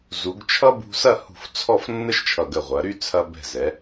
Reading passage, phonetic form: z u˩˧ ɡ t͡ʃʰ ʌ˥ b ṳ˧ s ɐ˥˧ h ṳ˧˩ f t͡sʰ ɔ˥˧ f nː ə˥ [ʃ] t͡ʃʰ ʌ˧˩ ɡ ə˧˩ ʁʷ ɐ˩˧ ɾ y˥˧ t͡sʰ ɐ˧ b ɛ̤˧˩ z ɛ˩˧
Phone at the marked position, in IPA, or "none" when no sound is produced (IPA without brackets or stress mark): ʃ